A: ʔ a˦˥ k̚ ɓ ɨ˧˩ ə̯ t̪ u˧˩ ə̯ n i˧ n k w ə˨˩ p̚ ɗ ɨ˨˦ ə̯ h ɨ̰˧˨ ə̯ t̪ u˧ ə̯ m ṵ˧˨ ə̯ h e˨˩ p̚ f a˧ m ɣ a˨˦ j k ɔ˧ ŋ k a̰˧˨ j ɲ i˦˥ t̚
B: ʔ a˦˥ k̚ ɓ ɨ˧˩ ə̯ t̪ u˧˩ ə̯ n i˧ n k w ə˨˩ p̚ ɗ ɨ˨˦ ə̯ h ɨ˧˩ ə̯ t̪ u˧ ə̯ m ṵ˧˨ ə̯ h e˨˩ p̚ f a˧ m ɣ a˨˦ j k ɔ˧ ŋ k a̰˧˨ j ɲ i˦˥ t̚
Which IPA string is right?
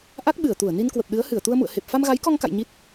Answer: B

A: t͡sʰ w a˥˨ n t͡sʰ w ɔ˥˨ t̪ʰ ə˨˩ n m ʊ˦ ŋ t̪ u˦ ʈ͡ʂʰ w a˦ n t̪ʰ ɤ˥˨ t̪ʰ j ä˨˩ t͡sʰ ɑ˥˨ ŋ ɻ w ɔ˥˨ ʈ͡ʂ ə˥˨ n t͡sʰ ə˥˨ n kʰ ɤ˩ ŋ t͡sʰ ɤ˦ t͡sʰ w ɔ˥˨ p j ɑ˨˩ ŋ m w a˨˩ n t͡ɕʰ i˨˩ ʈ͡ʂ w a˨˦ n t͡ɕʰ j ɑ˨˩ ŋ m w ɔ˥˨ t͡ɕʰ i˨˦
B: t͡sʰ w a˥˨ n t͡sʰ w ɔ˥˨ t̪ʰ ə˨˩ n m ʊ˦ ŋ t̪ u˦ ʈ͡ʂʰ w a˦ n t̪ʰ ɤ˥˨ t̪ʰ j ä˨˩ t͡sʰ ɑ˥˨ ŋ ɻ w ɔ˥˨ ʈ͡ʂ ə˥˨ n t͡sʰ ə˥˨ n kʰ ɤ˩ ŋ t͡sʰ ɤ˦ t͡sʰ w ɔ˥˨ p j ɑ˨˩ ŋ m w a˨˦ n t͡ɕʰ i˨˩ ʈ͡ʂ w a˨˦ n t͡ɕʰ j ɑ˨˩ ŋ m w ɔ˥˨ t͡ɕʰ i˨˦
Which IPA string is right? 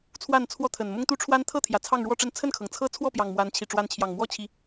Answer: B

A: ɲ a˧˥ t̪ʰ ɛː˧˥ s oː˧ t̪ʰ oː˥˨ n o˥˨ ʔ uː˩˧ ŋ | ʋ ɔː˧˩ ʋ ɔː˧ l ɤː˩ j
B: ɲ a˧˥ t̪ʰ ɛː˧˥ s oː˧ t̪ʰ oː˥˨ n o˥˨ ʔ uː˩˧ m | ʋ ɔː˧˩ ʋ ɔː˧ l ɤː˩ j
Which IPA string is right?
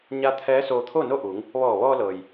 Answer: A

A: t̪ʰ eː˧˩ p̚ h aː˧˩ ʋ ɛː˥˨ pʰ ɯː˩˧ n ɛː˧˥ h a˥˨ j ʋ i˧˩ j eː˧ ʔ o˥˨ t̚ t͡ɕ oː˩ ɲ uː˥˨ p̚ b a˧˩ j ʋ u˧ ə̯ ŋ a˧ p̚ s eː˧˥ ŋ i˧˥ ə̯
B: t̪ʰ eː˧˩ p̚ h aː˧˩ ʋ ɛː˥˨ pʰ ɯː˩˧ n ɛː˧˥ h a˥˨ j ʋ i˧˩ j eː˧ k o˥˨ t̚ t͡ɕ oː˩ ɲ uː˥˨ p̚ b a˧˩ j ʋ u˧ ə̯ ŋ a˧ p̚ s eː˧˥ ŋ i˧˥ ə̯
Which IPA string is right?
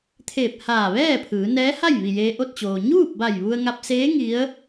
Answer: A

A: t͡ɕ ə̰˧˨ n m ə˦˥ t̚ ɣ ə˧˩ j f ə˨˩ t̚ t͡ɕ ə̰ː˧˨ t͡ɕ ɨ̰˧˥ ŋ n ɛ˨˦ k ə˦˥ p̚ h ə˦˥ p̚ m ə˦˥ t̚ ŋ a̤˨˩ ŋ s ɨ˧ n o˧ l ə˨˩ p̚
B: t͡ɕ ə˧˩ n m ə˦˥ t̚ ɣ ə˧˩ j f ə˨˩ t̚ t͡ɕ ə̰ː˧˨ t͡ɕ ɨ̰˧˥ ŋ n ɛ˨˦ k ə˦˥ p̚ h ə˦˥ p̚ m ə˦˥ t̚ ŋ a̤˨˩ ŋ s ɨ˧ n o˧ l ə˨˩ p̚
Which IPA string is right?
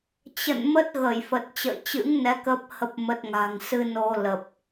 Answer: A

